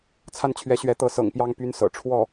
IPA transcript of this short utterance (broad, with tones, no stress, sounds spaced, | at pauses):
t͡sʰ a˥˩ n t͡ɕʰ ɥ ɛ˧˥ ɕ ɥ ɛ˧˥ t̪ ɤ˧˥ s ɤ̰˨˩ ŋ p j ɑ˥˧ ŋ p y˥˩ n s ɤ̰˨˩ ʈ͡ʂʰ w ɔ˥˩